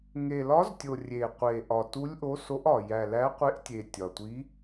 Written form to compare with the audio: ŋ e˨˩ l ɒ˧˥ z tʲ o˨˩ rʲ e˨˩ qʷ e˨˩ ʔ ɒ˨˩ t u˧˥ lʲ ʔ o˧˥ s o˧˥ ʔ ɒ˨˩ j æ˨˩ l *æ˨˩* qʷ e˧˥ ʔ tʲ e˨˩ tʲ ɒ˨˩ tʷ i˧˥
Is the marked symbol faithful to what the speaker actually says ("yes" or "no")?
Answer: no